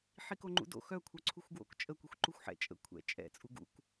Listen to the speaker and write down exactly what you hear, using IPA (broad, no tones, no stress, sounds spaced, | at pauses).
ħ i k o ŋ͡ǃ ṵ d o̰ x œ kʷʰ œ ǀʰ u xʷ ɡ w o̰ k t͡ʃʼ ə kʷ i xʷ ǃ u xʷ ħ ɛ̰ t͡ʃʼ ə̰ kʷʰ ɛ̰ t͡ʃʼ ɛ̰ t͡sʼ u ɡ ṵ k